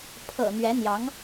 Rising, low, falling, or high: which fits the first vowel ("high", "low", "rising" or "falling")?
low